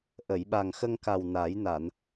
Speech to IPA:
ʔ ə˨˩˨ j ɓ a˨˩ ŋ x ə˧ ŋ k a˨˩ w n a˨˩˦ j n a˨˩˨ n

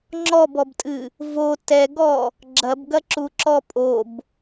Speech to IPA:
ŋ͡ǁ ɔ b ɔ b tʼ ɨ | v o t ɛ ɡ ɔ | ɡ͡ǁ ɐ b ɡ ɐ ǁ u ǁ ɔ pʼ o b

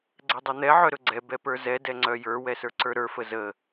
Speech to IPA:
ɡ͡ǀ ɛ dˤ ɛ n̪ ɛ ʕ œ ɾ ɵ ɡ͡ǀ ɛ b ɛ p ə˞ z ɛ d ɛ ŋ͡ǀ œ j ə˞ w ɛ s ə˞ ǀ ə˞ ɾ ə˞ f ə z ə

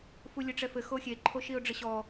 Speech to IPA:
f u lʲ ɘ ʈ͡ʂ ɛ f ɘ x o xʲ e ǃʰ o ʃ i ʊ̯ ɖ͡ʐ ɘ ɕ ɔ

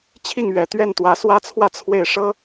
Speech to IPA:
t͡ɕʰ i˥˩ ŋ ɥ ɛ˨˩ t̪ ɥ ɛ˥˩ n t̪ w ä˧˥ s w ä˥ t͡sʰ w ä˥˧ t͡sʰ w e˥˩ ɪ̯ ʂ ɤ˥

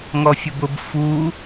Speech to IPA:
ŋ ɔ fʲ ʊ b ʊ b f u

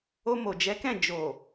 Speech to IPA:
o˧ m o˨ d͡ʒ ɛ˨˦ k ɛ̃˦˨ d͡ʒ o˨

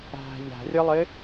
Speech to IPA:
æ̤ ʎ æ̤ rʲ ə lˠ ɪ

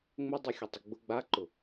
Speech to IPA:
ŋ͡m ʊ dˤ i xʲ ʊ tˤ ɪ ɡ͡b ʊ ɡ͡b a ǃ ʊ

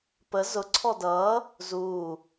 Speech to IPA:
p ə z ʊ ǀʰ ɔ d ʌː | z uː

